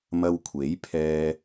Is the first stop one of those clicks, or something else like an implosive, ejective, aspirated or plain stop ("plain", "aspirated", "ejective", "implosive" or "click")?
aspirated